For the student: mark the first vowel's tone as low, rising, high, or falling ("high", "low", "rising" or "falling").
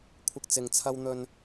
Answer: low